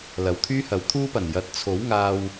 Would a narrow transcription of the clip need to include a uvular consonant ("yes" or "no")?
no